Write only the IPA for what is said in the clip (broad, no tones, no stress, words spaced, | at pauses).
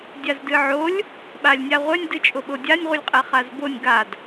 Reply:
dʲazdɨʕolʲ | ɓalʲnʲaʁʷɛnʲ dɨt͡ʃʼoɓodʲanʲ ʁʷɨlʲqʼɛχazbonʲ ɡad